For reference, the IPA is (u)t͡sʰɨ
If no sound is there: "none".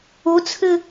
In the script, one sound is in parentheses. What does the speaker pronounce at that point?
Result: u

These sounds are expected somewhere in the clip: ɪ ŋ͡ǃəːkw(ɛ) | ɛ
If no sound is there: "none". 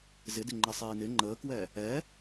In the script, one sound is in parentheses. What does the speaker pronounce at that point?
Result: ɛ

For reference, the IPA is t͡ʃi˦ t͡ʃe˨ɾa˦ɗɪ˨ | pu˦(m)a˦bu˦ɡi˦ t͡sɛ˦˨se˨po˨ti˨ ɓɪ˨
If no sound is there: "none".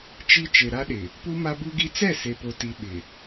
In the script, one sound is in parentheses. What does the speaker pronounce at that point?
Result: m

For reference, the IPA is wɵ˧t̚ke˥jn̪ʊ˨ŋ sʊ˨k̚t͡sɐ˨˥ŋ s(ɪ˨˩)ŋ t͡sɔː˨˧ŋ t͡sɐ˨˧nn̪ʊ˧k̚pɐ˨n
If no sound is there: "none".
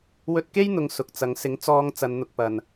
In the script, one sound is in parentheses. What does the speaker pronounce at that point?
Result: ɪ˨˥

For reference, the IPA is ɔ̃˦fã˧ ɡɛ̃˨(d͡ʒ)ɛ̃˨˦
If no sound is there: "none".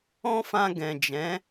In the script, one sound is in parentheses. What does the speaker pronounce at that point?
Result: d͡ʒ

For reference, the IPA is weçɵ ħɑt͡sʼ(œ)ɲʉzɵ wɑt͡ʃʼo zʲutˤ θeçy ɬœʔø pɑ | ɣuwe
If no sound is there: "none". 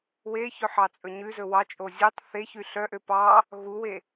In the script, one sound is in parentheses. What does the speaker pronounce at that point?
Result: ɵ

